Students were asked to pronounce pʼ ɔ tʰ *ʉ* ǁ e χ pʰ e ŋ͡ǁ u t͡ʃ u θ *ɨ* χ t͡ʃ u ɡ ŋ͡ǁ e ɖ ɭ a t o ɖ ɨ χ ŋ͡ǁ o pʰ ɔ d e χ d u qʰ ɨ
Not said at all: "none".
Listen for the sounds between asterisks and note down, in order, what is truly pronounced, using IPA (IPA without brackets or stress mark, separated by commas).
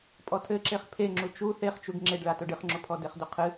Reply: ɘ, e